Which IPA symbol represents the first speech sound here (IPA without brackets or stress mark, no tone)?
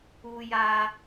u